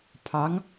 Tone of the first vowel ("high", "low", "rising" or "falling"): rising